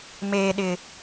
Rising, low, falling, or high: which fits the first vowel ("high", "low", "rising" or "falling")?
low